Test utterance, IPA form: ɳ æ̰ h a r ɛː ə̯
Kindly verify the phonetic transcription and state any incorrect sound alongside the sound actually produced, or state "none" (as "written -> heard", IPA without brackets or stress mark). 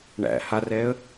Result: none